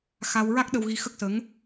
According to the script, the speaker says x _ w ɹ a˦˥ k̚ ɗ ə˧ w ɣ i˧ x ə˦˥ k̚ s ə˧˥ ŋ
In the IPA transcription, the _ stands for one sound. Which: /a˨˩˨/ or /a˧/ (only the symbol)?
a˧